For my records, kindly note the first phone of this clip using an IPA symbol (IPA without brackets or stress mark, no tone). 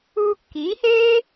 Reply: uː